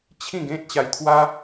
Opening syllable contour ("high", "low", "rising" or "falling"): falling